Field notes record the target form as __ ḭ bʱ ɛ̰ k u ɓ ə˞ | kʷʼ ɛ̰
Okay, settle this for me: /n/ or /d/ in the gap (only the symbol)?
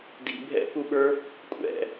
d